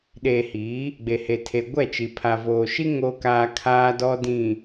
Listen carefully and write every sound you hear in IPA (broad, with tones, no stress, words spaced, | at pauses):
ɗeː˨hiː˨˦ | ɡ͡be˨he˨ tʰe˨ ɡʷɛ˦˨t͡ʃi˨ pʰa˨voː˨ʃi˦ ŋo˦kaː˦kʰaː˦dɔ˦ dĩ˨